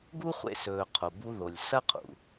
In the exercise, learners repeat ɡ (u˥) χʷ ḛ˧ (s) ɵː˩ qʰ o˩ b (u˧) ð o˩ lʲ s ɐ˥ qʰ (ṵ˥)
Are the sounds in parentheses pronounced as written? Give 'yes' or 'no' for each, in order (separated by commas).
yes, yes, yes, no